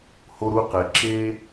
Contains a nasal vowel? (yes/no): no